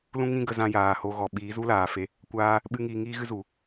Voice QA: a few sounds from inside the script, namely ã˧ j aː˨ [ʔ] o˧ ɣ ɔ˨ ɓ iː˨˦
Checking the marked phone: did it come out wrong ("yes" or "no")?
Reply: yes